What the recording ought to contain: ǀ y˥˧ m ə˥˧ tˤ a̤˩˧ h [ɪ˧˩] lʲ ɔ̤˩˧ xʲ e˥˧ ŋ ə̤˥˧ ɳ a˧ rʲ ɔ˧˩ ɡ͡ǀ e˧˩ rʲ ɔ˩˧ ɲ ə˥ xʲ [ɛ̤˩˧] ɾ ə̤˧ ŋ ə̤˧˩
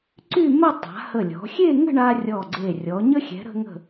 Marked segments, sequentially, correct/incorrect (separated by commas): incorrect, correct